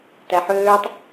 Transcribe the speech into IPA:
tæħøːtˤ

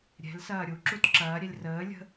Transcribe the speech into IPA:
ɾʲɛ̤l sɐːɾʲuǁut ǁɐːɾʲɛlʲ rəː lʲə̤

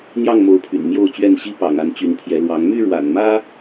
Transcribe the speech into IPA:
n̪jɑ˥˨ŋmo˨˦ʊ̯pʰy̰˨˩n mjo˥˨ʊ̯t͡ɕɥɛ˥˨n ɕi˦pɑ̰˨˩ŋa˨˦n t͡ɕy˨˦npʰjɛ˨˦lwɑ˨˦ŋ my˥˨ɻwa̰˨˩nmä˦

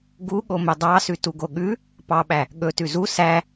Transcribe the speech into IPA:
ɡuɠo mɵdˤɑsʉ tuɡoɠʉ | pɑɓæ | ɠɵ tʉzu sæ

